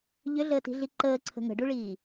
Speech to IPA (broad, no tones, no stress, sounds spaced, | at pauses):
ʎ ʏ ɮ əː t i̤ ɮ i ǃ əː ǀʰ ə̤ ŋ ə̤ ɖ u ɭ iː